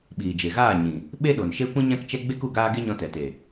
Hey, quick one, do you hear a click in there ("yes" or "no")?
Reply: no